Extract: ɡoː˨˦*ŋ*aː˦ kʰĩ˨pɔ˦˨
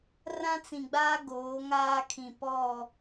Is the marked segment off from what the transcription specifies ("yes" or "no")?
no